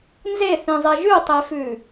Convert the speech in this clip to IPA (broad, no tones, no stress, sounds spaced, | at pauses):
n z e θ ĩ zˤ e ʒ ʉ tˤ e f ʉ